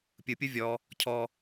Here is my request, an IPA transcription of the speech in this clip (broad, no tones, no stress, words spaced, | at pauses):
pʲɯpʲu vʲɔ | cʰɔ